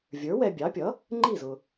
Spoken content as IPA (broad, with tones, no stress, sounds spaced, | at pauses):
vʲ ə˞˩˥ w ɛ˧ bʲ ɑ˩˥ pʲ ʌ˩˥ | ŋ͡ǃ i˥˩ z ʊ˩